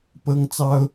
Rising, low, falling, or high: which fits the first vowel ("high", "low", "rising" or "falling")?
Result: high